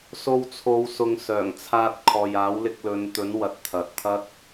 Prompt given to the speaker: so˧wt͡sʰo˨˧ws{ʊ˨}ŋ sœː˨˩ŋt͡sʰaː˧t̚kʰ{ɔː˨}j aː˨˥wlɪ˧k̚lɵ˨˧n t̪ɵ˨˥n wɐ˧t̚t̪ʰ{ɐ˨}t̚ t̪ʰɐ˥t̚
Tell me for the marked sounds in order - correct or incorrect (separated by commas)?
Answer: correct, correct, correct